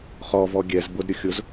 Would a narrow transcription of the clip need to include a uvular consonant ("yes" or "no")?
yes